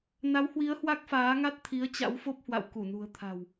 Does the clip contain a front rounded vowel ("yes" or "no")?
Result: no